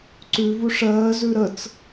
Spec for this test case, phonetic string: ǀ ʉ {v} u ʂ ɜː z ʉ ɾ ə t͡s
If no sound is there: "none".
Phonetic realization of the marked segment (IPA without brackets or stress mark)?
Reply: v